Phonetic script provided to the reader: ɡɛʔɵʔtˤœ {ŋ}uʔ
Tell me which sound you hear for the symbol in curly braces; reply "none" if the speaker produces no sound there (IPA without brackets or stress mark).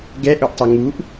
ŋ